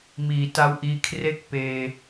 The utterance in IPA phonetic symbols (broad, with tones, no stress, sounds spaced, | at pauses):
m iː˩˦ t a˧ w ʔ iː˧ kʰ r e˥˩ k̚ p eː˧